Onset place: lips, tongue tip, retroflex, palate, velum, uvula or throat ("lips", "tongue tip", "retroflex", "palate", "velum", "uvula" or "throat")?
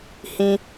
throat